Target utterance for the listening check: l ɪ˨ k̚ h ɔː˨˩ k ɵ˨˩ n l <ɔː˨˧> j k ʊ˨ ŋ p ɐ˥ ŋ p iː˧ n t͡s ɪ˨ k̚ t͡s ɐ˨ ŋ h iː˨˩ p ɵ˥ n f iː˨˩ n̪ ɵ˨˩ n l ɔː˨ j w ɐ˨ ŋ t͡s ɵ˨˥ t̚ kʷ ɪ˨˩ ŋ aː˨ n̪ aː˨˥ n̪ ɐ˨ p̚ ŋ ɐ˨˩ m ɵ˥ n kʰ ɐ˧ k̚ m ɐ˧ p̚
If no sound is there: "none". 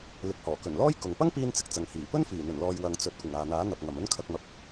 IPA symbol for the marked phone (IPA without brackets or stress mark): ɔː˥